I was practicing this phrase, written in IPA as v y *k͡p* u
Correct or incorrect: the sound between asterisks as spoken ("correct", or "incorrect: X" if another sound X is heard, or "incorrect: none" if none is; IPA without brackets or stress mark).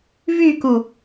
incorrect: k